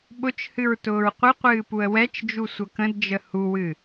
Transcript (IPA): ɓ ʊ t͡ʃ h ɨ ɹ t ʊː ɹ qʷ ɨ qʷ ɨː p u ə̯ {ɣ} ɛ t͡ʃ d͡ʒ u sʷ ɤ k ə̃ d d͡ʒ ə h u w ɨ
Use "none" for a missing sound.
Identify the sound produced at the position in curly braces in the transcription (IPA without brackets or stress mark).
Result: w